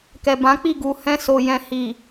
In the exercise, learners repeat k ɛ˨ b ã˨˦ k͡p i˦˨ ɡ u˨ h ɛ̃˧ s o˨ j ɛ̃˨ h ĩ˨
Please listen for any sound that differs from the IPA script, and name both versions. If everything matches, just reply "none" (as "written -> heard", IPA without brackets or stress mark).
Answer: ĩ˨ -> i˨